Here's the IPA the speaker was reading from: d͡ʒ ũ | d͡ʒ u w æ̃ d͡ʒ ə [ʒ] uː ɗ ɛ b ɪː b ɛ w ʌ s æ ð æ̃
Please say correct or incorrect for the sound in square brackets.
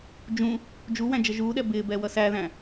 correct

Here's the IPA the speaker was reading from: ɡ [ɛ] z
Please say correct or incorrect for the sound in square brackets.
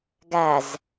incorrect: æ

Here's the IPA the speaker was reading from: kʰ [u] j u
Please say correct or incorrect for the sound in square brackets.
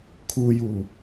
correct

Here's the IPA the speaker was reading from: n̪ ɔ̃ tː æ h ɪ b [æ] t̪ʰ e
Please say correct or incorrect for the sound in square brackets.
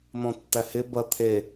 incorrect: ɐ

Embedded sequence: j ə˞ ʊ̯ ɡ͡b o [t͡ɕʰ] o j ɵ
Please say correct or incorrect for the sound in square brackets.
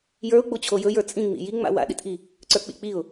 correct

